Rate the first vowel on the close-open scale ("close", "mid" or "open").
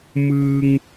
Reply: close